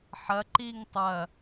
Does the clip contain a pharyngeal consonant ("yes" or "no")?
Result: yes